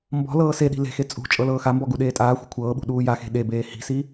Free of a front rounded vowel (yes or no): yes